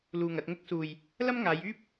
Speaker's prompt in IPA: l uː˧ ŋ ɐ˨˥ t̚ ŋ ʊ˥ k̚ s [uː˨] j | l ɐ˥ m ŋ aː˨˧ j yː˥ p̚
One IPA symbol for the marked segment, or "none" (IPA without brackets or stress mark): uː˨